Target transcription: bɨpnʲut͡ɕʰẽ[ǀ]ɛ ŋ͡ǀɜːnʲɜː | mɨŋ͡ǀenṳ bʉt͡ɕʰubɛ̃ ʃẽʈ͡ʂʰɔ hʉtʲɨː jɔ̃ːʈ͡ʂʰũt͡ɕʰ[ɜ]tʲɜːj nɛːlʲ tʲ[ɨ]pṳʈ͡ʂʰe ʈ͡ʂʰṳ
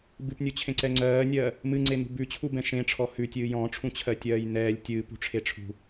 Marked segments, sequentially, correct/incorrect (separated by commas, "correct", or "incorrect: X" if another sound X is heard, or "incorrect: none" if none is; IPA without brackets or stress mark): correct, correct, incorrect: ɨː